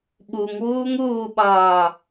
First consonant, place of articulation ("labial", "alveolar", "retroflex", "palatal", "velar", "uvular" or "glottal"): labial